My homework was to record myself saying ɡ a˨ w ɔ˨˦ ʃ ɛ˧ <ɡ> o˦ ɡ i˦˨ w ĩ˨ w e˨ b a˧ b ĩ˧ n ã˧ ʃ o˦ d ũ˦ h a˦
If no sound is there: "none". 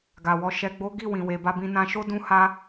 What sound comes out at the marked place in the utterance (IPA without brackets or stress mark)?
ɡ͡b